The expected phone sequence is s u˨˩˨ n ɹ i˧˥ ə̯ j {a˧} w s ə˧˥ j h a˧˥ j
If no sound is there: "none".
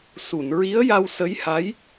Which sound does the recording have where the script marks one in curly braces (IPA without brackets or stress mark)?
a˧